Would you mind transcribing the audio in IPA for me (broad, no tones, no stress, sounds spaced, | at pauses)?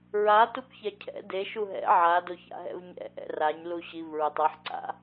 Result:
ɹ a t u p ç ɛ cʰ ɛ̰ d e ʃ u ɦ ɛ̰ ʕ a d o ç a̰ ɦ ɛ̰ v ɲ ɛ̰ ʔ ɛ̰ r a ɲ l u ɕ i v ɹ e tˤ ɛ ħ ǀ a̰